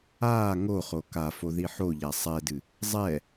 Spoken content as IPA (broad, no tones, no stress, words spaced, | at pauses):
aː ŋoχo kafo ðiħoʎa sˤɛdɨ | zˤɛ